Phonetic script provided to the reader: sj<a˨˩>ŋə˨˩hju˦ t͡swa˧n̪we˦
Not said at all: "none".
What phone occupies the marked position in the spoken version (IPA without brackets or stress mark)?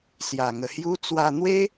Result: a˨˩